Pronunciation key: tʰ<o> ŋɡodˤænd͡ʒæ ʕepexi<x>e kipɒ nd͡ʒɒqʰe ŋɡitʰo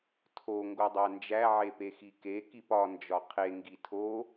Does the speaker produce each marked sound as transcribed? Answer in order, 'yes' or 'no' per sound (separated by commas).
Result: yes, no